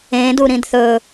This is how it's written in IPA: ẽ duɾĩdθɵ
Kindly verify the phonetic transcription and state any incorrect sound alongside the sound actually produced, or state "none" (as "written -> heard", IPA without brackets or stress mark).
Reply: none